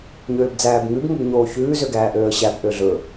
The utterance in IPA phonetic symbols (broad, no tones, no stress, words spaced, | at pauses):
ɲøːbd͡zæːbŋʉb ŋɵbɲoːçʉː zøɡæːʔøːə̯ɕæb ʔøɮɵ